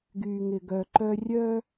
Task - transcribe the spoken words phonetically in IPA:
ɡyː˨ŋɪ˨ɡœ˨ ǃœ˦ rʲœ˦

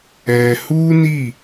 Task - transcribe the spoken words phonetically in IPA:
ɛ˨hu˦ni˦˨

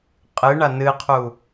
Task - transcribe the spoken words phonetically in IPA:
qʼɨɳa nɨqʰu

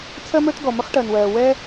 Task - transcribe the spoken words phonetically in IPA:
t͡sʰɜ˥mə˞˥t ɡɔ˩mə˥χʈɜ˩nwɜː˩ wɛː˥

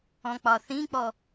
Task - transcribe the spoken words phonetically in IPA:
ɔ̃k͡pɒθĩk͡pɔ

